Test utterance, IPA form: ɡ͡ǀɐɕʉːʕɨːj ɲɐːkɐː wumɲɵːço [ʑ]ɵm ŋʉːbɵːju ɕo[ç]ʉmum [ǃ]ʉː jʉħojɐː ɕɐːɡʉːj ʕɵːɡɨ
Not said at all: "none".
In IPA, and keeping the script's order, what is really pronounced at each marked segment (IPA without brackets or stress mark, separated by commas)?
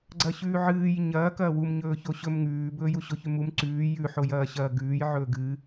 ɕ, ç, ǀ